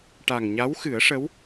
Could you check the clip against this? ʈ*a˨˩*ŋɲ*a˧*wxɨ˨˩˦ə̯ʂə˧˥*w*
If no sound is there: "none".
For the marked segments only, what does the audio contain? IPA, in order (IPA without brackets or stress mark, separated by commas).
a˨˩, a˧˥, w